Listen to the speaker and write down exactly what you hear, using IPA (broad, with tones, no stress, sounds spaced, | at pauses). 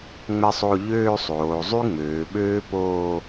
ŋ͡m ɛ˥ sˤ o˥˧ ʎ øː˥˧ sˤ oː˩˧ zˤ y˥ ŋ͡m øː˩˧ ɓ øː˥ p oː˥˧